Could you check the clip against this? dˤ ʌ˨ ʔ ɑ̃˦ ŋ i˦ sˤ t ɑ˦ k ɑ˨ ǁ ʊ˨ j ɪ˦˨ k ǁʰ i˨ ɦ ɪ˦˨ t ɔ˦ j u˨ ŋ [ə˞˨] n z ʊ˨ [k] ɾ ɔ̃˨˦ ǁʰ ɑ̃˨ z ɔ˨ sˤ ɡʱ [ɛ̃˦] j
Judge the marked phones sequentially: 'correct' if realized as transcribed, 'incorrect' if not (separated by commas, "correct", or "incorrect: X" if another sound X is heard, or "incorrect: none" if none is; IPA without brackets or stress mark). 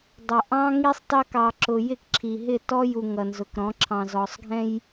incorrect: ʌ˨, correct, correct